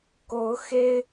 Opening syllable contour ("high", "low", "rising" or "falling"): rising